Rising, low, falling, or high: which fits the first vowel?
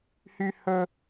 high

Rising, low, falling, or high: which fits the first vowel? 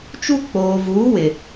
high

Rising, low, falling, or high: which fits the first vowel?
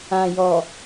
low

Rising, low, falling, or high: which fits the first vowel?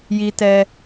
high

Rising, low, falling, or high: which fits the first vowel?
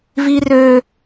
high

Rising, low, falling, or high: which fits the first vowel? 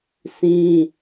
high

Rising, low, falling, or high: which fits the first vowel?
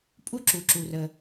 high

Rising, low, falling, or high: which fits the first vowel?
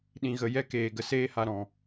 low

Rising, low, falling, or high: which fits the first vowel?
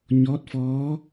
rising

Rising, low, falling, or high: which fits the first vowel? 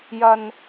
low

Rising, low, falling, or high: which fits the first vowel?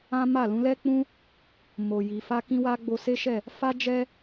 high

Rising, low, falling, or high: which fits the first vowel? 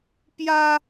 high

